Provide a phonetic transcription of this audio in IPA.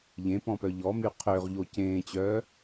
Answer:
ʎ ẽ p ɔ̃ p œ ʎ ɔ m y qʰ ø ʁ ʎ o c ẽː t͡ɕ œː

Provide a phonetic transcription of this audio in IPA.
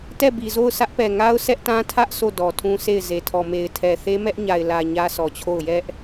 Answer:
t ɛ˦˨ b i˨ z o˦˨ ʊ̯ s ä˦ ʔ p ɛ˨ ŋ a˦ ʊ̯ s ɛ˦ ʔ t ã˦ tʰ ä˦ ʔ s o˦˨ d ɔ˨ tʰ ũ˦ s e˦˨ ɪ̯ z e˨ tʰ ɔ˨ m e˨ ɪ̯ tʰ ɛ˨ θ e˦ m ɛ˦ ʔ ɲ a˨ ɪ̯ l ä˨ ɲ ä˦ s ɔ˨ t͡ɕʰ o˦˨ ʊ̯ j ɛ˦ ʔ

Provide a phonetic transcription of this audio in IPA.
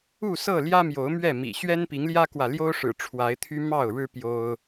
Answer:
u˥˨ s ɤ˥˨ l j ä˦ m j o˨˦ ʊ̯ m ɥ ɛ˥˨ m ḭ˨˩ ɕ ɥ ɛ˦ n p i˨˦ ŋ l j ä˦ k w ä˨ l j o˦ ʊ̯ ʂ ɻ̩˨˩ ʈ͡ʂʰ w a˨˦ ɪ̯ t̪ʰ y˦ m ɑ˥˨ ʊ̯ ɻ ɻ̩˦ p j o˦ ʊ̯

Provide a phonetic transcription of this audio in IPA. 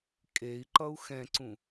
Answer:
kʼ e i̯ ǃ ʌ u̯ x ɛ̃ ǀ ũ

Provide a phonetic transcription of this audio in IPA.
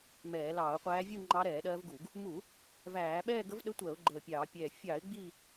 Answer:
m ɛː˧˩˧ l ɑː˧˩˧ ʊ̯ qʷ æː˧˥ vʲ u˥˧ ŋ͡ǃ ɑ˧˥ ɾ ɛː˧˩˧ ɗ ɜː˧˥ v ɡ u˧˩˧ ɡ | m u˧˩˧ | v æː˧˩˧ ɓ ɛː˥˧ ɡ ə˧˥ v ɗ ə˧˥ tʷ ɜ˧˩˧ ʊ̯ ɡ͡ǃ əː˧˩ pʲ ɑː˧˩˧ pʲ ɛː˧˩ fʲ ɑ˧˩˧ ɪ̯ ɡ͡b i˥˧

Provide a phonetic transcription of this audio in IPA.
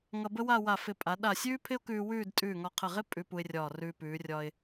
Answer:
ŋ ʌ˧ b ə˥ w a˥˧ w a˧˩ f ɪ˧˩ pʼ a˩˧ ɗ a˧˩ sʲ ʉː˥ pʰ ɪ˥ ʊ̯ k ʉː˧ w ʉː˥˧ d tʼ ʉː˧˩ ŋ ɒ˧˩ qʰ ə˧˩ ʁ ɪ˥ pʼ ʉ˧ p u˧ ɪ̯ rʲ ɒː˧˩ r ʉː˧ p ʉː˩˧ rʲ ɒ˧ ɪ̯

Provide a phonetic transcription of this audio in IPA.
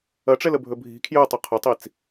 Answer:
ɐ ʈ͡ʂ ɛ l ə bʱ ɵ bʱ i̤ kʰ j ø tˤ ʊ qʰ ʊ tˤ i t͡s

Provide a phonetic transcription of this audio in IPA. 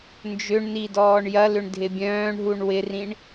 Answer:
n d͡ʒ ʏ ɳ n i d ɔː ɳ j ɐ l ʏ ɳ dʱ ɪ bʲ œ̃ː ɳ ɦ u ɳ w ɪ r ĩ ɳ

